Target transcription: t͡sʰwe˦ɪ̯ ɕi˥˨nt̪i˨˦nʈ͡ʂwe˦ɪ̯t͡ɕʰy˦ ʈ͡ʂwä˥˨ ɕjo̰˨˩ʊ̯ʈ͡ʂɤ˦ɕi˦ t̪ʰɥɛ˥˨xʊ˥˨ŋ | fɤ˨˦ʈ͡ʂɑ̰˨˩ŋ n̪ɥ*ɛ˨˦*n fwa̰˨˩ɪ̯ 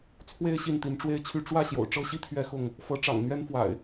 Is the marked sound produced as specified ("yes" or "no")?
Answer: no